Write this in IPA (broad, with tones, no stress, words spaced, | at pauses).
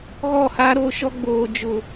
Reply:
ɣɔ˦˨ha˦ɾoː˦ʃɔ˦ ɡ͡boː˨d͡ʒʊ˨